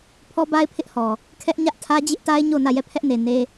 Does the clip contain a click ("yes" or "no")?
no